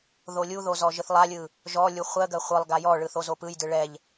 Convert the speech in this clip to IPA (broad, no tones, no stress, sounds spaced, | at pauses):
ð o lʲ u ð o z ɔ ʒ ɯ θ lˠ a lʲ ɯ | ʒ ɔ lʲ u χʷ ɜ ɡ ɜ χʷ ɯ lˠ ɡ a j ɔ ɭ ɯ θ o z o p ɯ j d ɯ ɭ ɛ ʎ